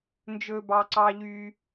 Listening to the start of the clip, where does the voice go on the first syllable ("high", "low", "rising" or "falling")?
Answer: low